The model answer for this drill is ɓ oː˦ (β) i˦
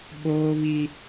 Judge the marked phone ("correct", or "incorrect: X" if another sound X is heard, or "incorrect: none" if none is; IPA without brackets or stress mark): correct